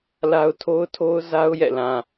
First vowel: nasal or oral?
oral